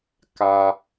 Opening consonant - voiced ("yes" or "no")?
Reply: no